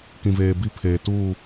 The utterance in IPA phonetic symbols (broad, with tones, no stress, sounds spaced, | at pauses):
k ĩ˨ v eː˨ b i˦ pʰ eː˨ t uː˦˨